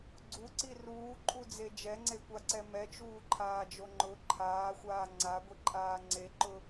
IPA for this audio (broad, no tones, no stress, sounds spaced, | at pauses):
ɡ͡ǀ u ǀ i r uː ǃʼ u d͡z e d͡ʒ ɛ ŋ͡ǀ e kʷ a ǀ ɛ m ɛ t͡ʃ uː ǃʰ aː d͡ʒ o ŋ͡ǃ ʊ ǃʰ aː xʷ aː ŋ͡ǀ a ɡʷ i ǃʼ aː ŋ͡ǀ e ǃ ʊ